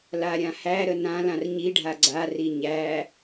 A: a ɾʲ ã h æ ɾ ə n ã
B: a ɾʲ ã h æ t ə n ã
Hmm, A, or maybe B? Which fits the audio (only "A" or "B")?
A